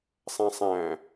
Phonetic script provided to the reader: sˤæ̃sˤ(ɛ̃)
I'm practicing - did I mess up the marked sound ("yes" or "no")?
yes